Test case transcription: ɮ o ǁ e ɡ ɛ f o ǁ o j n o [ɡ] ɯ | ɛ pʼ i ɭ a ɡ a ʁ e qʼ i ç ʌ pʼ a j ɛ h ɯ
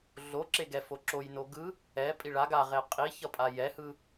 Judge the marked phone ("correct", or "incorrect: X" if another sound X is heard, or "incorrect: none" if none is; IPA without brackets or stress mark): correct